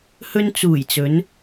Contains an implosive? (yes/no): no